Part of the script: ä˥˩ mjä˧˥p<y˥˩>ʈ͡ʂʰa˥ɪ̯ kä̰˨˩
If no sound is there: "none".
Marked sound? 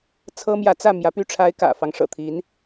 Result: y˥˩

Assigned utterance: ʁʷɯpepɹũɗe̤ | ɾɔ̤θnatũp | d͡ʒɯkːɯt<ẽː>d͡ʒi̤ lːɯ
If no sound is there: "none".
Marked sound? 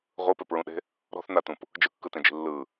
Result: ẽ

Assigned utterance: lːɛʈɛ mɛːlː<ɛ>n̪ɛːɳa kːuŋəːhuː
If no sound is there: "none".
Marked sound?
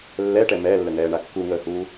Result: ə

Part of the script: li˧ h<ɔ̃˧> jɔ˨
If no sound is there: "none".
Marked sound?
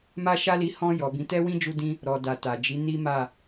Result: ɔ̃˧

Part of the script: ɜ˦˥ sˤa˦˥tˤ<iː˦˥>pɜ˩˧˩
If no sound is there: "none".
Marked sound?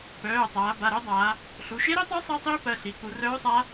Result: iː˦˥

